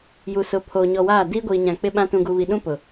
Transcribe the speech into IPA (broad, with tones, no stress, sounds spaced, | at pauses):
j u˨ s ʊ˨˦ pʰ oː˨ ɲ ɔ˨ w aː˦˨ d iː˦ ɡʷ iː˨ ɲ ã˨ k͡p ɪ˦ ɓ ã˦ t ũ˨ ɡ u˨ β i˨ ɗ ũ˦ p ʊ˨